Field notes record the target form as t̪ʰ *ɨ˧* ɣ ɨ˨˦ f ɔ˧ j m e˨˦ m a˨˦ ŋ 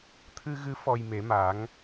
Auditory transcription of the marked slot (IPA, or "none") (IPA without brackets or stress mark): ɨ˧